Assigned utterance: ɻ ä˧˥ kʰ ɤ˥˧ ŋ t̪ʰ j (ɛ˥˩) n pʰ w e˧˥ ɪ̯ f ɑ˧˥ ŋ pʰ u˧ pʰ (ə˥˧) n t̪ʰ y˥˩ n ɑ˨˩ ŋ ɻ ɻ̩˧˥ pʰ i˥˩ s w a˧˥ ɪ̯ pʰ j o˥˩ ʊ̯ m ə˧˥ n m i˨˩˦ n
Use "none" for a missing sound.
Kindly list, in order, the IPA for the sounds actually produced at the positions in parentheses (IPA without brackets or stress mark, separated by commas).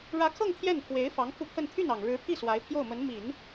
ɛ˥˩, ə˥˧